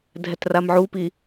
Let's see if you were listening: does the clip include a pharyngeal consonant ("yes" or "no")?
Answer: yes